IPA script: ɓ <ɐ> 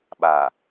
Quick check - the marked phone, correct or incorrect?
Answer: incorrect: a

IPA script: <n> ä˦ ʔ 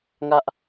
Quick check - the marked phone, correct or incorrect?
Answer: incorrect: ŋ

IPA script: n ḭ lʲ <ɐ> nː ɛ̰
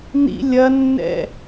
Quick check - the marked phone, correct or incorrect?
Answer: correct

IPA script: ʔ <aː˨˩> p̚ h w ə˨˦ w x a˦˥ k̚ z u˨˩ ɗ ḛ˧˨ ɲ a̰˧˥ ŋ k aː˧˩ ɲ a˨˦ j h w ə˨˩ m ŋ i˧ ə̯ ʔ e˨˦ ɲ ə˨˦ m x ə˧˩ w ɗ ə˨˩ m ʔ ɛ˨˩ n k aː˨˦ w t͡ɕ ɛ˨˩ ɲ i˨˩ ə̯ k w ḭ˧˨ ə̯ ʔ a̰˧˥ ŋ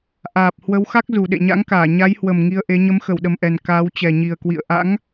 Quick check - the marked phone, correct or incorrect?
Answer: correct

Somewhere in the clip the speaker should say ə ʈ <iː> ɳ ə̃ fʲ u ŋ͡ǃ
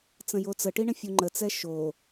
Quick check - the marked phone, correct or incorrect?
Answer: incorrect: i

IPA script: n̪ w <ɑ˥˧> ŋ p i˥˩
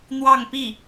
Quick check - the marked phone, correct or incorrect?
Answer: correct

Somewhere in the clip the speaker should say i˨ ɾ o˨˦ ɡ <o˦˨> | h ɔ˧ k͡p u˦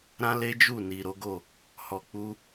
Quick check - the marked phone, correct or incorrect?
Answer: correct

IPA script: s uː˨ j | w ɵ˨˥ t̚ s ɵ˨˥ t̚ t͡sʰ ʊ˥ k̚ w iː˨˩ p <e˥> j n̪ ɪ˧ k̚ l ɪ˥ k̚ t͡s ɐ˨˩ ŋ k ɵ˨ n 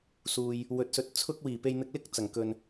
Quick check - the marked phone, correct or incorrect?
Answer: incorrect: e˧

